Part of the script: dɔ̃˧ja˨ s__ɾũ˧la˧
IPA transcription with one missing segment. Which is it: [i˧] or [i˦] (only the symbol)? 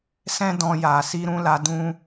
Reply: i˧